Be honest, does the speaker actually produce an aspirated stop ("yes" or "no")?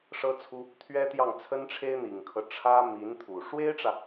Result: yes